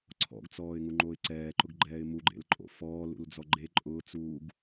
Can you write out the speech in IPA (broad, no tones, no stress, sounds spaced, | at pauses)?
ǀʰ ɔ̰ ɡ t͡s ɔː ɪ̯ ŋ u ŋ͡ǃ o ɪ̯ ǀ ɛː ǃ ʊ ɡ ɡ͡ǃ ɛː ɪ̯ m u ɡ͡ǃ ḛ l ǃʼ o̰ f ɔː l ṵ l d͡z ɔ ɡ͡ǃ e ǃʼ ʊː t͡s uː ɡ